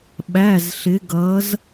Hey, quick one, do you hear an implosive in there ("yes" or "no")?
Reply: yes